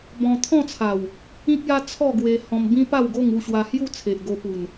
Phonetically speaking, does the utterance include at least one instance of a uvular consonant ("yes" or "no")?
no